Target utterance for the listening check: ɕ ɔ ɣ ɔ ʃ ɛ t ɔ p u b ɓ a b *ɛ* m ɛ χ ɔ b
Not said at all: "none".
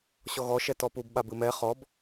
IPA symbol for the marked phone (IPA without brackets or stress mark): ɨ